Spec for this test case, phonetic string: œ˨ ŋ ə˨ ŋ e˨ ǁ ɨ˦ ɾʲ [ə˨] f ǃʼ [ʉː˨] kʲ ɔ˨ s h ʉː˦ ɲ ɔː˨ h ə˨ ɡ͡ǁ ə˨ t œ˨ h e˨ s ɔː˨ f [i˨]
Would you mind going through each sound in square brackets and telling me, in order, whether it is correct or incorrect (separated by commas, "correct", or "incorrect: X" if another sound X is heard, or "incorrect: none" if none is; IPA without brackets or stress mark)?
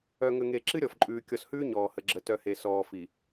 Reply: incorrect: ɔ˨, correct, correct